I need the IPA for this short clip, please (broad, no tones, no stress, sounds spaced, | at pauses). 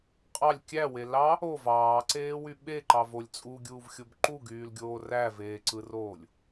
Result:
qʼ ɑ lʲ kʲ æ w e l ɑ | o v ɑː ǀ eː w y ɓ e ǃ ɑ v o lʲ t͡sʼ u ɡʲ uː v xʲ o b ǃ u ɡ yː l ɡʲ oː r æ v eː ǀ ɯ r oː lʲ